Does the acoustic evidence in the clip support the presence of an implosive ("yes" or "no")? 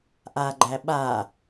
yes